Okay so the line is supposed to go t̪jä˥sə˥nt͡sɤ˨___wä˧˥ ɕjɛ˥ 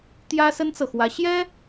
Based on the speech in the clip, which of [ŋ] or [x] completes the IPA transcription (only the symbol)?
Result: x